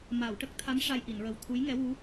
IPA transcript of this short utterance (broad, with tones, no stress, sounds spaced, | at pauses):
m a˨˩˨ w ʈ ə˦˥ k̚ t̪ʰ a˧˥ m ʂ a˧ j ʔ i˨˩˨ n ɹ ə˨˩ w t̪ʰ u˧˥ j ŋ ɛ˧˥ w u˧˥